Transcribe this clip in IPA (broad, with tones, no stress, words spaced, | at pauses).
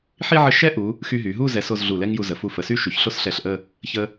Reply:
ħi˥ ʕə˥ ʃɛ˥ʔu˩˧ | xy˧ɦy˩˧ ɦu˥˧zɛ˩˧s o˧z ɮu˧˩lɛ˥ŋju˧zə˩˧ fu˧fə˩˧sy˥ ʃy˩˧ç ɬo˥sɬɛ˧˩ɬʔə˥˧ | çə˧